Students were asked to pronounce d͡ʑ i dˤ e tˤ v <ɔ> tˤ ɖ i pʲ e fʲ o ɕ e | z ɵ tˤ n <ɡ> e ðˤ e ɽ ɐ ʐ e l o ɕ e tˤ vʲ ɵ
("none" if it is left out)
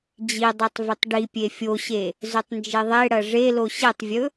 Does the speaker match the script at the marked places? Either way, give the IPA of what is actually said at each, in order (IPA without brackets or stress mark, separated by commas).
ɵ, d͡ʒ